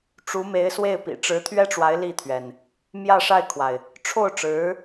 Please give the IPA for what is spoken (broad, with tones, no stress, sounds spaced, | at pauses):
ʈ͡ʂ u˧˥ m e˧˥ ɪ̯ s w e˥˩ ɪ̯ p ḭ˨˩ ʈ͡ʂ ɻ̩˧˥ t̪ʰ ɥ ɛ˥ ʈ͡ʂ w a˧˥ ɪ̯ l i˥˩ t̪ʰ ɥ ɛ˩ n | m j ä˥˧ ʂ a˥˩ ɪ̯ kʰ w a˩ ɪ̯ | ʈ͡ʂʰ o˥˩ ʊ̯ ʈ͡ʂ ɻ̩˧˥